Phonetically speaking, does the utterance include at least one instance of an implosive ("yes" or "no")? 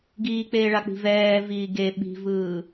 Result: yes